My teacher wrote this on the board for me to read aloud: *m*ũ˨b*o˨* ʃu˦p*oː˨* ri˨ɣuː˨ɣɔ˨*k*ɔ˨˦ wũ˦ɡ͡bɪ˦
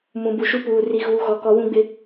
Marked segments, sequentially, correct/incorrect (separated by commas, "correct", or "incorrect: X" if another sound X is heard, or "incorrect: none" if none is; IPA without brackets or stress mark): correct, incorrect: u˨, incorrect: uː˨, correct